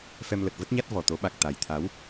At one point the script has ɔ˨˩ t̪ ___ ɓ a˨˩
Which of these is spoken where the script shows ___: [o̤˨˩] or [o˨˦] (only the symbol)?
o˨˦